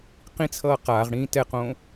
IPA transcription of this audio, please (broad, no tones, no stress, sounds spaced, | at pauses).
q ĩ t͡sʰ ʌː q aː ʁ ɽ ĩː t ɛ q õ